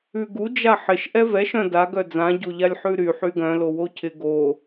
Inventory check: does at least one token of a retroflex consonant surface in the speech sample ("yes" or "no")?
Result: no